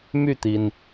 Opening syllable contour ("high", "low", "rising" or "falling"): falling